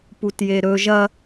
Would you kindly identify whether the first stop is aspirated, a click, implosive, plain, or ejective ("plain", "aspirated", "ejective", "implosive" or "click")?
plain